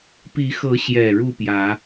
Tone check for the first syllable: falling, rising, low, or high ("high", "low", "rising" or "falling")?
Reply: rising